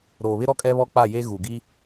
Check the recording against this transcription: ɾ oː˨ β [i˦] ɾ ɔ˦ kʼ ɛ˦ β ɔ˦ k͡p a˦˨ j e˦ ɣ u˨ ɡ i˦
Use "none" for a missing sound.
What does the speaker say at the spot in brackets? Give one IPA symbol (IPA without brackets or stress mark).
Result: ɪ˦